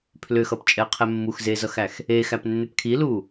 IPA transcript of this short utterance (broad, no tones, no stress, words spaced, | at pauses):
pʰlʏxʌpt͡ʃʼɛqʰɛ mːuxzezʌxæx | exæpnːʏp kʰilu